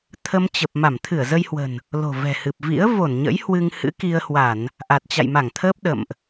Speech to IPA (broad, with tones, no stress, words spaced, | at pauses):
t̪ʰə˧mt͡ɕə˨˩p̚ ma˧˩mt̪ʰɨ˧˩ə̯zə˧jhwə̤˨˩n | lo̤˨˩vɛ̤˨˩hɨ˨˩p̚ vḭ˧˥ə̯ vo˧˩nɲə̰˧˥j hwɨ˧ŋhɨ̰˧˥ki˧ə̯hwa˧˩˨n | ʔa˨˩t̚t͡ɕa̰˧˨jma˧˩ŋt̪ʰəː˦˥p̚ ɗə̰˧˨mʔ